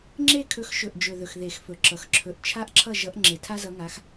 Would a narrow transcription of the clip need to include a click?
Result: yes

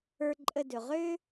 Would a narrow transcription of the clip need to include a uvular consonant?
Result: yes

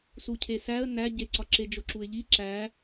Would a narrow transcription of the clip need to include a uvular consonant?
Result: no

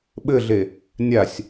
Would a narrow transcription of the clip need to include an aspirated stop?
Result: no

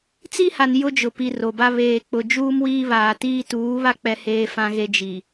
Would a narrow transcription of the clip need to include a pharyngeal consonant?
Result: no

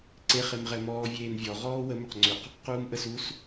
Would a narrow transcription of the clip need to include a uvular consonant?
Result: yes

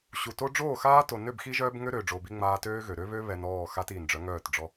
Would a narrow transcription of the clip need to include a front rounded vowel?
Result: yes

